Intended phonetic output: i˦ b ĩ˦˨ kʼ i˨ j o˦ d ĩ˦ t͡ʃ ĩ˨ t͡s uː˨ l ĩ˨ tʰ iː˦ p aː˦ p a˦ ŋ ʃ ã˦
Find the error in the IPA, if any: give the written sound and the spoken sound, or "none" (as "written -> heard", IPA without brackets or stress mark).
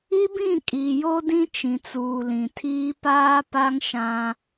none